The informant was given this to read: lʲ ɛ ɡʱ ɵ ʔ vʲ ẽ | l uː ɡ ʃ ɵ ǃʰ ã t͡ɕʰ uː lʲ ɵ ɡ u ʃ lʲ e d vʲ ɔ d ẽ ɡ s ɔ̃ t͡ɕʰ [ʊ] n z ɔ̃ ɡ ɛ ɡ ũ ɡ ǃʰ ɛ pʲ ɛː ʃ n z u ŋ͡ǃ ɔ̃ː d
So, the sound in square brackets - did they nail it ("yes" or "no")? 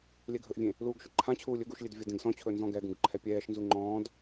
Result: no